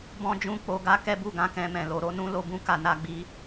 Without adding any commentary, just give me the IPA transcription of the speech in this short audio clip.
bɔ̃˦ d͡ʒũ˦˨k͡po˧ɡa˦ kɛ˦bu˦˨ɡã˧ kɛ̃˧mɛ̃˨lo˧ ɾo˦ nũ˦lo˧bũ˦ ka˧na˧ɡ͡bi˧

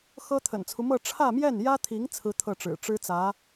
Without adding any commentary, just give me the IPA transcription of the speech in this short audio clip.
xɤ˥ t̪ʰə̰˨˩nt͡sʰu˦mɤ˥˧ ʈ͡ʂʰä˥˧mjɛ˥˩njä˥t̪ʰi˧˥ŋ t͡sʰɹ̩˥t̪ʰɤ˥˩ʈ͡ʂɻ̩˨˩ ʈ͡ʂɻ̩˥t͡sä˧˥

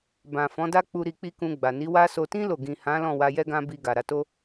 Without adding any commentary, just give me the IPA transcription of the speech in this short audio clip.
bã˨fɔ̃˨˦da˦k͡pu˧ ɾi˧k͡pi˦kũ˧ɡ͡ba˨ ni˨˦wa˦so˧ tĩ˦ lo˦˨ ɡĩ˨hã˨˦ lɔ̃˦˨wa˧jɛ˦ɡã˦ bi˧ɡa˨ɾa˧to˦

